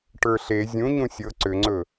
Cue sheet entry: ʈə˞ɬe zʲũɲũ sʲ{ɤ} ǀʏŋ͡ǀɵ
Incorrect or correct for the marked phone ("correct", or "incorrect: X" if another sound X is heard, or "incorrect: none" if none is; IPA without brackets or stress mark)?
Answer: correct